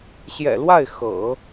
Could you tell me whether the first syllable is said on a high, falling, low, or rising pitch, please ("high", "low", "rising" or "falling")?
low